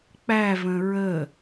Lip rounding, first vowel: unrounded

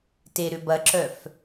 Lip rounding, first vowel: unrounded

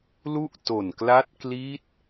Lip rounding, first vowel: rounded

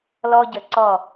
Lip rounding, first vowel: rounded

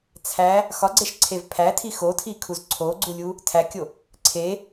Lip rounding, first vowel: unrounded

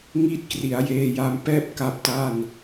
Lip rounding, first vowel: unrounded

